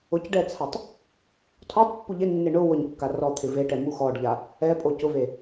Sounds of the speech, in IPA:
ʊcɖɛt͡sʰatˤ | tʰɔtˤpːu ʎɪnːɪ ɳʊ wʊɲkːa rɔt̪ʰɪ veʈɛmu xɔɖʎa | ɛpʼo cʊve

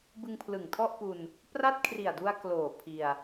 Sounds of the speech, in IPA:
bɯ˧ŋpʰlɯ˨˩ŋtʰɔ˥˩ʔpu˧n | pra˥˩t̚kʰri˨˩a̯du˧a̯ kloː˨˩ pʰi˧a̯

